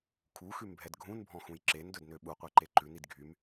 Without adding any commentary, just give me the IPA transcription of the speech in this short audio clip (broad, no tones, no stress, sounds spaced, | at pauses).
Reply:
kʰ u x ʉ m bʱ ɛ d ɡʱ ũ n bʱ ɔ̃ x ũ j ǁ e n d ɵ d n ø ɓ u qʷ ɛ ǃ e ǃ ʉ n i d ɡʱ y m